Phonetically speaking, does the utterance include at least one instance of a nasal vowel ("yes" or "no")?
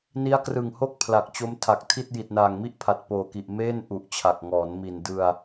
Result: no